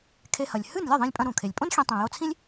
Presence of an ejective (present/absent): present